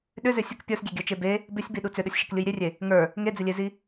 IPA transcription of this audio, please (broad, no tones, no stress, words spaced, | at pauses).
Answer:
ɗʏzʏ sʲək pʲə˞sɡʲeɡʲə˞t͡ʃe be | bɪsʲbiɗu t͡sʏɗəsʲʃɪklʲɯj ɾʲerʲe | ŋə˞ | ŋed͡zɪlʲezi